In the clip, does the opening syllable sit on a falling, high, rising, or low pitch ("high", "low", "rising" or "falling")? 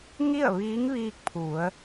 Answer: falling